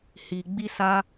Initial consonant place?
glottal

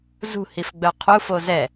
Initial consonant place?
alveolar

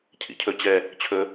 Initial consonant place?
palatal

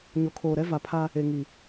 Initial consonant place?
palatal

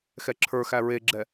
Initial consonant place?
velar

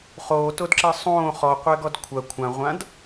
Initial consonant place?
uvular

